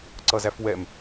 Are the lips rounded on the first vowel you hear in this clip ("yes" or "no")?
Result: no